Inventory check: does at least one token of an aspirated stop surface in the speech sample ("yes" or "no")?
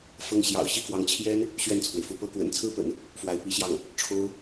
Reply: yes